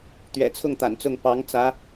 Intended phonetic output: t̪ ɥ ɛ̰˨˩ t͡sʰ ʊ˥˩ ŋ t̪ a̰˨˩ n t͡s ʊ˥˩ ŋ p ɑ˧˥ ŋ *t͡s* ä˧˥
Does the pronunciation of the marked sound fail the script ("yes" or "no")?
no